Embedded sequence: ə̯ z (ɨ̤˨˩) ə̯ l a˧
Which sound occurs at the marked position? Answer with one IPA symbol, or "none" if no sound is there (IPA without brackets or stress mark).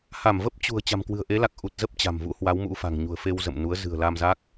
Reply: ɨ̤˨˩